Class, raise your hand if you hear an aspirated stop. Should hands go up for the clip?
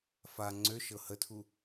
yes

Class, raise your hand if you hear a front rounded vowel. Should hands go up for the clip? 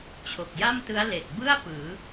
no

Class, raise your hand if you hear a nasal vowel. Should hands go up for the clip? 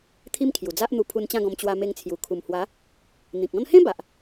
yes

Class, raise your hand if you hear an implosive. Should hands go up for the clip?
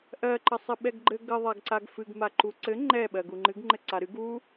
yes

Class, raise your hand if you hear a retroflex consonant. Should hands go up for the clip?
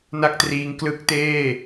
no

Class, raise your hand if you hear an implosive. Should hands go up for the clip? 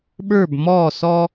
yes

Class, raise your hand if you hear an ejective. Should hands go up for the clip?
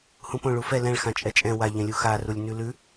yes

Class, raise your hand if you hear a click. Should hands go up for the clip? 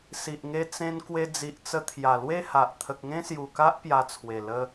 no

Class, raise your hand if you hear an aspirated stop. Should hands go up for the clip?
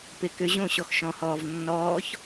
no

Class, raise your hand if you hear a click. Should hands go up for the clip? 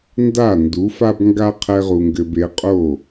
no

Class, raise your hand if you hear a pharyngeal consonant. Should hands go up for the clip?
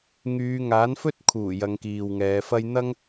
no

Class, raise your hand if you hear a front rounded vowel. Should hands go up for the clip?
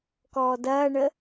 no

